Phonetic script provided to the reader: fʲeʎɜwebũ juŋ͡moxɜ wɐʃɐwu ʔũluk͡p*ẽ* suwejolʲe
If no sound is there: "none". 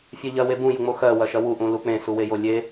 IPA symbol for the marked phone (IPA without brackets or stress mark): ẽ